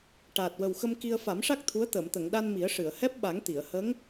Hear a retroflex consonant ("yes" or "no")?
yes